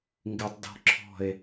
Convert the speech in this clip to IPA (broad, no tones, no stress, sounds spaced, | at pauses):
ŋ ɡ ɪ tˤ d ɔ̤ ǁʰ ɔ̤ e̯